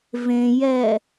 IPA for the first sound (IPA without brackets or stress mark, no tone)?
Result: v